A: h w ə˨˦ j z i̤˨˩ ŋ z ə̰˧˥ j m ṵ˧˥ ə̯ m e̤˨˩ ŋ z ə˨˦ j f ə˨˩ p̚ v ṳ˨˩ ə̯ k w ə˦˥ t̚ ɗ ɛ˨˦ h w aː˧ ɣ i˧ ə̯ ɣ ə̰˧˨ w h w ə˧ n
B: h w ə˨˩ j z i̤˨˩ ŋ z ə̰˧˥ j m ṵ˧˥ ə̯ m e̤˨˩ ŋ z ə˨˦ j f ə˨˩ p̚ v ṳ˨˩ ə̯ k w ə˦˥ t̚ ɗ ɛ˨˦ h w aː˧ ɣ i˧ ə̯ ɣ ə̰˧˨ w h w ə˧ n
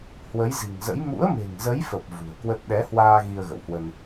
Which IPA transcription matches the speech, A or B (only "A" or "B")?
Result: A